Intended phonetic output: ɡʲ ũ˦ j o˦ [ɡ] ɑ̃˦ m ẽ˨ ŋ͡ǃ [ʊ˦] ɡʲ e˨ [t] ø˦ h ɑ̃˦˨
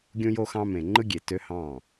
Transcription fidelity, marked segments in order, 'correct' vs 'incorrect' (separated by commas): incorrect, incorrect, correct